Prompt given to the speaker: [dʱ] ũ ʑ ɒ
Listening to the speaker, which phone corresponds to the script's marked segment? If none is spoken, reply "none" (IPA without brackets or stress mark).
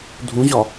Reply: dʱ